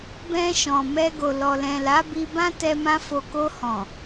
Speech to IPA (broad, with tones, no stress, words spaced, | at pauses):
bɛ̃˧ ʃɔ̃˨mɛ˧ ɡo˨lɔ˨lɛ̃˨la˨˦ bi˧bã˦tɛ˧mã˧ fo˨ko˧hɔ̃˨